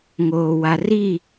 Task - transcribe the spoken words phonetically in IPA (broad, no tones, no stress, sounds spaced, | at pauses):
ŋ oː w a r i